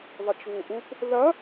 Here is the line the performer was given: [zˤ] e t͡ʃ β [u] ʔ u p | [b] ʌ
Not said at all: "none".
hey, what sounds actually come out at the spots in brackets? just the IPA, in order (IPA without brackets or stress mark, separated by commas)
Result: ðˤ, u, ð